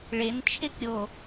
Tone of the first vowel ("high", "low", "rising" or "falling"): rising